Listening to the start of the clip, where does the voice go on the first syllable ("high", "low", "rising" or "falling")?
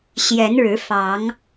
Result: rising